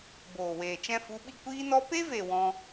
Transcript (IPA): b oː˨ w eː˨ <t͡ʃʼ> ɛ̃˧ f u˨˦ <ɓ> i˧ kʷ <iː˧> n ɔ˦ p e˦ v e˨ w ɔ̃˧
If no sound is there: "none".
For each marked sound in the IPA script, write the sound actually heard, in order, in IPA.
t͡ʃ, ɓ, iː˦

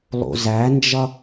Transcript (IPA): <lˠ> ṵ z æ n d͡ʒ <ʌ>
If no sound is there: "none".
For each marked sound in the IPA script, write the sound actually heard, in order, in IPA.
lˠ, ʌ

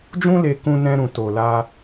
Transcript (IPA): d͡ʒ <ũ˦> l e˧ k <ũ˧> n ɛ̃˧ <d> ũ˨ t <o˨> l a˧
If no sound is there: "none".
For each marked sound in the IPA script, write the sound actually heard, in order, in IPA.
ũ˦, ũ˧, ɾ, o˨

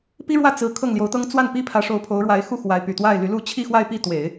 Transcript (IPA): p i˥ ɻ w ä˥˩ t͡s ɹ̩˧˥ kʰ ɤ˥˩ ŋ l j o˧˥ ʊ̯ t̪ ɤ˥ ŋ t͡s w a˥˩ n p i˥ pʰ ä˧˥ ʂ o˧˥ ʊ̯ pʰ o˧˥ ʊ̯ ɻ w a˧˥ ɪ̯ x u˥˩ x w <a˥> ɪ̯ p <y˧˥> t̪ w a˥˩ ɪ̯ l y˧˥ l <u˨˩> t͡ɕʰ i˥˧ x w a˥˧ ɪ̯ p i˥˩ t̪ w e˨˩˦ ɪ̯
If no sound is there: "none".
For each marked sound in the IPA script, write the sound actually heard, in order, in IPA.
a˧˥, y˨˩, u˥˧

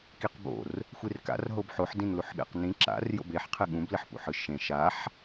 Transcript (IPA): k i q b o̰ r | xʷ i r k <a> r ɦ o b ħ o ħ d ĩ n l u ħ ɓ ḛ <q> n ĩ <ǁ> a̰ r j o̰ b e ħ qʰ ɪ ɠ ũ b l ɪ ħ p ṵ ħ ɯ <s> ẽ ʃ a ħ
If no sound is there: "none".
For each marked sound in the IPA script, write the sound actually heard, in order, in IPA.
a̰, q, ǁ, ʃ

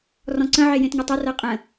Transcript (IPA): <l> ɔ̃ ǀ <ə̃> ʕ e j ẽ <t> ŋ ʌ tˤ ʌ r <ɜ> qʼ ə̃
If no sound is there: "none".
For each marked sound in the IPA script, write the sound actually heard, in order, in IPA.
r, ə̃, t, ɜ

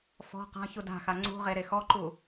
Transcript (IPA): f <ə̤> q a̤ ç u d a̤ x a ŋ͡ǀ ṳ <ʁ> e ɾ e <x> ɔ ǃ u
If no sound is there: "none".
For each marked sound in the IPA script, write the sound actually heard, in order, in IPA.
ɔ̤, ʁ, x

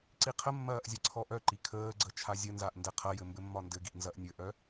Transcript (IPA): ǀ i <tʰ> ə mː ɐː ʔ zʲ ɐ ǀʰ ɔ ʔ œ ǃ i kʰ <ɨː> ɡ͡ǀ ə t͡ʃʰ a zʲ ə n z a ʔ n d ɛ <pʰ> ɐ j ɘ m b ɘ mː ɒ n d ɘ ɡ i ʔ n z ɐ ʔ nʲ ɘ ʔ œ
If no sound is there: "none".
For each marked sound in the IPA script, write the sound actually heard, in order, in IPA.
qʰ, əː, qʰ

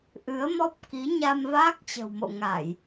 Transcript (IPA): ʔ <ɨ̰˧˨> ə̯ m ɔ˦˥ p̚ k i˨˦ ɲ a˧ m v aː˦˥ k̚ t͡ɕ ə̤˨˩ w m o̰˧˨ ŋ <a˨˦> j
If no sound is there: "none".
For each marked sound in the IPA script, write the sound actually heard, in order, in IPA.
ɨ˨˦, a˧˩˨

